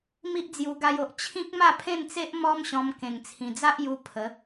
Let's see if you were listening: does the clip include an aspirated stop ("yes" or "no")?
yes